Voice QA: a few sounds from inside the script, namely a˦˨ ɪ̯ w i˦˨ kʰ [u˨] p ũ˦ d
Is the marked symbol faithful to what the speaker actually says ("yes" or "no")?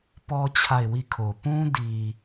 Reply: no